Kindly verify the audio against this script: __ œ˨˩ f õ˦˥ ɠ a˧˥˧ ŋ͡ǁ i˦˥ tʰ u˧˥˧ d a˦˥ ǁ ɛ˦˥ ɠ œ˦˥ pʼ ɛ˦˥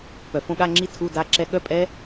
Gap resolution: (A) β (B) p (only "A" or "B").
B